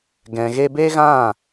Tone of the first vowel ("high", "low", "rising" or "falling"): low